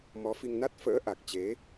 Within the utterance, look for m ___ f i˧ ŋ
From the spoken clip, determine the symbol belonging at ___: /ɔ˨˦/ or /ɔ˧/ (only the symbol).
ɔ˨˦